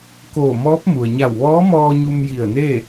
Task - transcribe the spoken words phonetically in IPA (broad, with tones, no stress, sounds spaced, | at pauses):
k oː˧˩ m ɔː˧˥ p̚ m u˩ ə̯ ɲ a˧˩ w ʋ ɔː˧˥ m ɔː˧ ɲ u˧ m j i˧˩ ə̯ n e˥˨